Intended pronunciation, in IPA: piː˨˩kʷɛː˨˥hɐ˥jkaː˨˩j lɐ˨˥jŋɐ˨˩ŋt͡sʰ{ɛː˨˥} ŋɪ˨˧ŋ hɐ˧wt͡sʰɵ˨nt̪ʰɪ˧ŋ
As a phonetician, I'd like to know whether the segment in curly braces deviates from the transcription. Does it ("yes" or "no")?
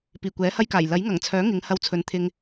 yes